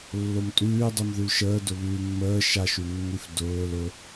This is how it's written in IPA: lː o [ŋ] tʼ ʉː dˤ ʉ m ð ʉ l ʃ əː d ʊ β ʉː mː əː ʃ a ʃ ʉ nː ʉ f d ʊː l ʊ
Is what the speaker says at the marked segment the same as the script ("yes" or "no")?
no